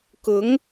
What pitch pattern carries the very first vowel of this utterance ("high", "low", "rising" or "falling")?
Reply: rising